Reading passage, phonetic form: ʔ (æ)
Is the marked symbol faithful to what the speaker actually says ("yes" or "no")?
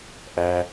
yes